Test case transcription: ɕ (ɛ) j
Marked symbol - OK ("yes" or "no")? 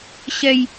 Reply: yes